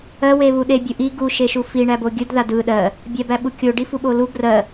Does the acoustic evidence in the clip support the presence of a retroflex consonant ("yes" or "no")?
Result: yes